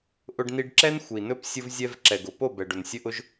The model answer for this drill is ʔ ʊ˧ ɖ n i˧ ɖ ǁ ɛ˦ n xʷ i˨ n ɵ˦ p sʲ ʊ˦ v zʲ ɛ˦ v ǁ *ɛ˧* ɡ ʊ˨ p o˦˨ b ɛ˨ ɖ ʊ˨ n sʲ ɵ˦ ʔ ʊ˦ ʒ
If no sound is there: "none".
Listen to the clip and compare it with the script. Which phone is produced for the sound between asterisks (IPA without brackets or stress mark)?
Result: ɛ˨